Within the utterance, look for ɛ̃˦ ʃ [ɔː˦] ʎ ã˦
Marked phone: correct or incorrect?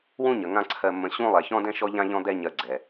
incorrect